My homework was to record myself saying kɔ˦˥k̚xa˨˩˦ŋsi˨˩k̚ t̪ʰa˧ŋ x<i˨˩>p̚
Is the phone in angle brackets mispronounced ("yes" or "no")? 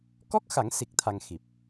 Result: no